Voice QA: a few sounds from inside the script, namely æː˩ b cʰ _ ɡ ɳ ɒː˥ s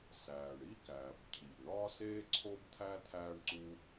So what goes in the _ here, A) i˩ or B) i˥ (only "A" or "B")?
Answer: A